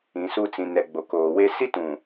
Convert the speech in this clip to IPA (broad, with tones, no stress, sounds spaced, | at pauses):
ĩ˨ s u˦ t͡s ĩ˨ n ɛ˨ ɡ͡b o˨ k oː˨ w e˦ s i˦ t ũ˨